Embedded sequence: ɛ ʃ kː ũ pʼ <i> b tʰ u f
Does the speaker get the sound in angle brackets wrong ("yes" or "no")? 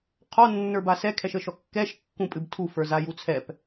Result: yes